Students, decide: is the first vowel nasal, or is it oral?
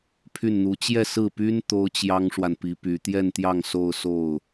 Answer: oral